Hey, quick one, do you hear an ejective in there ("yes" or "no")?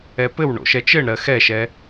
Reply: no